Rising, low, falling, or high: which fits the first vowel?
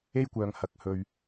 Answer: high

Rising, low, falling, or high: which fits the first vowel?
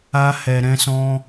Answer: high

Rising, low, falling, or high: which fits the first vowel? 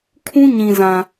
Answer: high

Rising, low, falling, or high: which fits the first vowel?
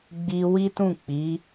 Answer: high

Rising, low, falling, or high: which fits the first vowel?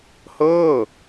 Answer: falling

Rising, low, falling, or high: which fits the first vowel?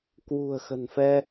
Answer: low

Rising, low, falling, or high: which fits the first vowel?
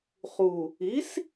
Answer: low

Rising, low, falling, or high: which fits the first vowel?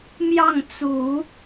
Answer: falling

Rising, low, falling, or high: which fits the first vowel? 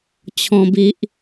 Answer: high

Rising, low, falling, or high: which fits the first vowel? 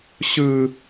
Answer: high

